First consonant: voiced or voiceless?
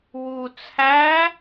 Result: voiced